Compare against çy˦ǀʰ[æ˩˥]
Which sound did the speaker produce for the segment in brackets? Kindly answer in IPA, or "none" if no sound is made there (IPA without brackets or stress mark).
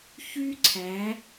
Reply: æ˩˧